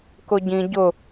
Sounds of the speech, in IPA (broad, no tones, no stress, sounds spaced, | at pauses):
k ʊ ɟ ĩ ɟ ʊ